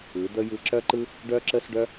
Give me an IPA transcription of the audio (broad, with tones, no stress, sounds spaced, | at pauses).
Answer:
ɯ˨˦ d̪ ə˦ j ɯ˧ ǁ œ˦ ǃ ɯ˦ | ɖ œ˦ ǁ ə˦ s ɖ œ˦